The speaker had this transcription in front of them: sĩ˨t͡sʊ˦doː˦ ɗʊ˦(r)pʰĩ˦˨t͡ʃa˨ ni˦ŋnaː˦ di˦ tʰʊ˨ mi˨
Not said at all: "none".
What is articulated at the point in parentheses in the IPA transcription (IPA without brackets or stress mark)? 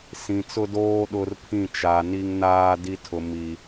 r